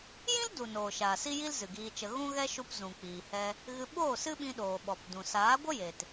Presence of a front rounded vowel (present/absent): absent